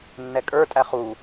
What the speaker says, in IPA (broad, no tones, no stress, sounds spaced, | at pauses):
nː ɛ kʼ ə˞ tʼ æ χ u